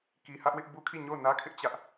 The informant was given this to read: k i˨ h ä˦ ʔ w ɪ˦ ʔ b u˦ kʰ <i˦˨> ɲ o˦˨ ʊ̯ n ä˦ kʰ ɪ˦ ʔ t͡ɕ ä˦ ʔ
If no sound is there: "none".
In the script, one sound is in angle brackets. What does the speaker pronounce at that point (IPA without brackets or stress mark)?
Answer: i˦˨